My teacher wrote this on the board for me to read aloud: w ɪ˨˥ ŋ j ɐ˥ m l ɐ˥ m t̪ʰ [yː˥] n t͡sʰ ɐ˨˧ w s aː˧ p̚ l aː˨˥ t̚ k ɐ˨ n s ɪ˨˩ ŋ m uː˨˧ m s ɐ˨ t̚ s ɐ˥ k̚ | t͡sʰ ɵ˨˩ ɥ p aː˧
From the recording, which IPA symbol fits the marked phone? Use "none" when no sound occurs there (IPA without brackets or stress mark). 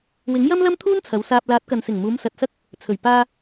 uː˥